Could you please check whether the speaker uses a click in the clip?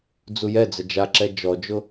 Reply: yes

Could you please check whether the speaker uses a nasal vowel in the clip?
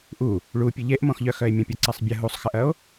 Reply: yes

